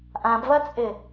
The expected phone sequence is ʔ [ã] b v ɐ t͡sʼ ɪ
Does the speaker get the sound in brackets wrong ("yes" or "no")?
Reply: no